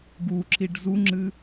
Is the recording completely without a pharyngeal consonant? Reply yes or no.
yes